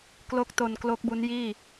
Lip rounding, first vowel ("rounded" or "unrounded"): rounded